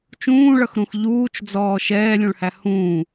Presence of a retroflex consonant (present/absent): present